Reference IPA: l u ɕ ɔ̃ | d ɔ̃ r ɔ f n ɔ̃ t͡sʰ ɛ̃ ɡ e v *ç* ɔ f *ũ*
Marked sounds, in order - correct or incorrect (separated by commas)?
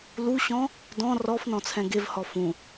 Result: incorrect, correct